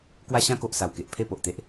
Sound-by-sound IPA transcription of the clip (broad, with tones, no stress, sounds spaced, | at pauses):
k w a˦ ɕ ã˦ k o˨ ʔ s a˨˩ w k e˨ ʔ pʰ e˥˧ p o˨ ʔ t̪ e˦ ʔ